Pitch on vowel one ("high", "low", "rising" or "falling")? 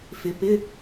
rising